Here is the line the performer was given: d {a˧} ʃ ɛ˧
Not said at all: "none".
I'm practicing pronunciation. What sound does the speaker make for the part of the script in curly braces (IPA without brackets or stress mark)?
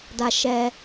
a˧